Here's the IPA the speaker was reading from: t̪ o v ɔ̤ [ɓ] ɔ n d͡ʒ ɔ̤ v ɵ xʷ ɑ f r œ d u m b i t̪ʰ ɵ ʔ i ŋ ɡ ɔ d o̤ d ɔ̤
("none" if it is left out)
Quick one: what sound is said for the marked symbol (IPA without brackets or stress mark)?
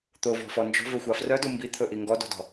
f